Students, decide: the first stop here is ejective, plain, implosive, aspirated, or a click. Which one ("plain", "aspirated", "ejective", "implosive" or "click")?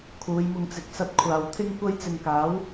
aspirated